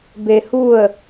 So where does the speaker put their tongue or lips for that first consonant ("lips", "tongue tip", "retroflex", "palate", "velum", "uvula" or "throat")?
lips